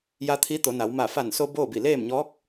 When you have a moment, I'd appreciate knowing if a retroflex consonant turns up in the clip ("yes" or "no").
no